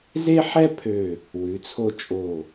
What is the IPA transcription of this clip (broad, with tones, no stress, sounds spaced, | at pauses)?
z e˥ ħ ɛ˥ pʰ ø˧˩ | w ʉ˩˧ t͡sʰ o˧ t͡ʃʼ o˧˩